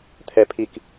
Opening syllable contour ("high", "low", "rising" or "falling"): high